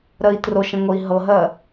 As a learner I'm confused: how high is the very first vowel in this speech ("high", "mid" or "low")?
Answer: mid